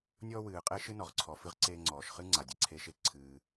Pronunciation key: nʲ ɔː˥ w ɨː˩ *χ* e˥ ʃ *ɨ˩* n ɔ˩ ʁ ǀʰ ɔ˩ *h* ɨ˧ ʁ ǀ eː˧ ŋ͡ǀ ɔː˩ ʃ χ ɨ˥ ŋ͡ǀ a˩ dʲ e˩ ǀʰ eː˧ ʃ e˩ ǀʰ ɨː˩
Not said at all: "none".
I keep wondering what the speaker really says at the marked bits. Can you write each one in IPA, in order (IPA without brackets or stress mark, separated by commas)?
qʼ, ɨ˥, f